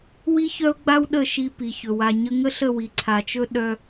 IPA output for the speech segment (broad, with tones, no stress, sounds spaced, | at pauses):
w i˦ ç œ˦ ʊ̯ ɡ͡b a˦ w ɗ ə˦˨ ʃ i˧ p i˨ ç ɵ˨ w a˧ ɲ ə˧ ŋ ə˦ ɬ ə˦˨ w i˨ ǀʰ a˨ t͡ʃ ɵ˦ ɗ œ˦